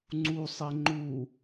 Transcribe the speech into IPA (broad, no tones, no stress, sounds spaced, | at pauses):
ŋ͡ǀ u sˤ e ŋ͡ǃ u